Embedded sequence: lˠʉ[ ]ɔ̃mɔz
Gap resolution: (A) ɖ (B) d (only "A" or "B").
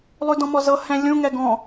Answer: B